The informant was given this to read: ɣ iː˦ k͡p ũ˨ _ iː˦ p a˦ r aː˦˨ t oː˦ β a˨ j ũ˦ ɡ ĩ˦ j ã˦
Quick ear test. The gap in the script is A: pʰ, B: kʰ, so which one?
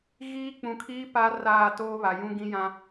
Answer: B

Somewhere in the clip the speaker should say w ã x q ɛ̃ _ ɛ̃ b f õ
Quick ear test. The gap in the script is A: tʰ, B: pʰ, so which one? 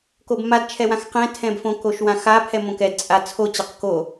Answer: A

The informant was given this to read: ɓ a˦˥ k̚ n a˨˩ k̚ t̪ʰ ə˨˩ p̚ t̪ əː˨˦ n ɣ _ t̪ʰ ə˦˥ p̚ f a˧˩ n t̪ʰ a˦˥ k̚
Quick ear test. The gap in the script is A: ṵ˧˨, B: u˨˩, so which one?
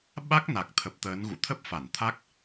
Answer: A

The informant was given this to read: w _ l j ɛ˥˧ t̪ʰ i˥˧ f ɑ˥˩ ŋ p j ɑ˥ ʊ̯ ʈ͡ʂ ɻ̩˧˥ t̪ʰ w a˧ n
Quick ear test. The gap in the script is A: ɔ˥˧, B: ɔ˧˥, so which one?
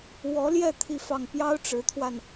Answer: B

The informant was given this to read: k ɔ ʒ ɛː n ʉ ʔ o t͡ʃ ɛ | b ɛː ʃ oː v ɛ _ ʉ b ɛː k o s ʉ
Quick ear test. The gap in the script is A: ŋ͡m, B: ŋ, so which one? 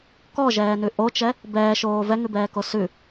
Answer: B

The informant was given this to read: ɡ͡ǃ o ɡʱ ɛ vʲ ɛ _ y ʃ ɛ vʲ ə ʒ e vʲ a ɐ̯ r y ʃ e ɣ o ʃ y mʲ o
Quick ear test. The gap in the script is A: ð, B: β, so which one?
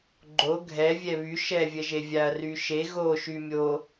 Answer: B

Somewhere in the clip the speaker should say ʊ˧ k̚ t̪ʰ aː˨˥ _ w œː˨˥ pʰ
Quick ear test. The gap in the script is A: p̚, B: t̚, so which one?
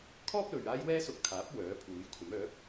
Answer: A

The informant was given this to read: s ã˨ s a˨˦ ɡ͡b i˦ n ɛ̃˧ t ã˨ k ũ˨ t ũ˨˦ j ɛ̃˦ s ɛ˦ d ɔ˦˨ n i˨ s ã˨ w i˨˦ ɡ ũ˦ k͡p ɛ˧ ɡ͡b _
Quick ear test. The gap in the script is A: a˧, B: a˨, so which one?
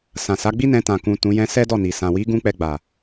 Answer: B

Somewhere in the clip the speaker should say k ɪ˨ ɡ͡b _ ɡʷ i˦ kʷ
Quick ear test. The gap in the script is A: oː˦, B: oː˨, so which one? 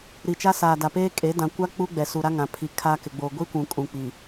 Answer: B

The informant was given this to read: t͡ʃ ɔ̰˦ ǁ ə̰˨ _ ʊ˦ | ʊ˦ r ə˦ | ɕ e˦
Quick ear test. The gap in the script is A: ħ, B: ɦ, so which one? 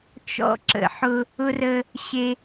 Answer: A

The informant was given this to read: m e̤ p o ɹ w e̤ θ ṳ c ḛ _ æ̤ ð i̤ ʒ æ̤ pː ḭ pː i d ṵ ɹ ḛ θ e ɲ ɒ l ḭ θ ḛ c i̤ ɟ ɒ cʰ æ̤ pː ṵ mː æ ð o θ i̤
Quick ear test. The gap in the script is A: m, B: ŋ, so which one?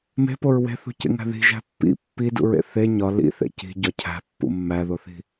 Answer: B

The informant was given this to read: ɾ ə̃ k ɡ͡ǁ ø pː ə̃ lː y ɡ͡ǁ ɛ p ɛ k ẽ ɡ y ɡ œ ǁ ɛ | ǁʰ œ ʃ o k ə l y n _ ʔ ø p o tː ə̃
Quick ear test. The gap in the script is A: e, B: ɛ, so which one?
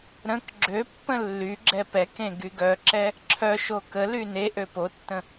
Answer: A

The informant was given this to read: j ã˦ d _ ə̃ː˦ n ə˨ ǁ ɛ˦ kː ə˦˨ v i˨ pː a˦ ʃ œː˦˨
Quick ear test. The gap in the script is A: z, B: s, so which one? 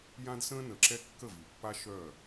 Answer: B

